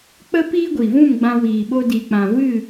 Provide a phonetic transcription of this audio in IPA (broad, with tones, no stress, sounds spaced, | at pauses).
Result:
k͡p ə˦ p iː˦ ɡʷ i˨ v ũ˦˨ m ɡ͡b ã˧ w iː˨ ɓ o˧ d iː˨ k͡p ã˨ v ɨ˦˨